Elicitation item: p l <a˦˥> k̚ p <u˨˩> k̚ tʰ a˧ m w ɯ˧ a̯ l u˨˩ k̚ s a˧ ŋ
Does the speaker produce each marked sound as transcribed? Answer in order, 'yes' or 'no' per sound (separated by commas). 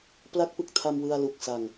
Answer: yes, no